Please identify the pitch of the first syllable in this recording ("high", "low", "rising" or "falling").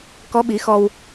rising